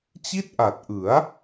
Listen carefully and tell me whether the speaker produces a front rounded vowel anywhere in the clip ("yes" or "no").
no